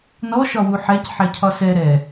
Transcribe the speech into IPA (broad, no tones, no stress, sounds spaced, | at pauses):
n ɔ ʃ ɒ w u ħ ɛ c ħ ɛ cʰ ɒ s ɛ ɾ ɛ